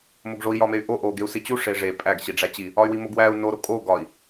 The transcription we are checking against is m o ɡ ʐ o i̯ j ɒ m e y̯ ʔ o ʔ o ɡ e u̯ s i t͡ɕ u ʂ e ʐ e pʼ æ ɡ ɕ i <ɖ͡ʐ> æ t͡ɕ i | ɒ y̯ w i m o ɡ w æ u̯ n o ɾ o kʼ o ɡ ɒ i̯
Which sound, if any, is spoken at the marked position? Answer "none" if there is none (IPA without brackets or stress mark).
ɖ͡ʐ